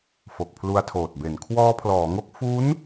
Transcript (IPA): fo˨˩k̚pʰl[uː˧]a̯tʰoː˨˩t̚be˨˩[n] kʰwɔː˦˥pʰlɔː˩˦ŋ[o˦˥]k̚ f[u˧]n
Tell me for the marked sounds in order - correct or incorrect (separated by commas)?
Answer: incorrect, correct, correct, incorrect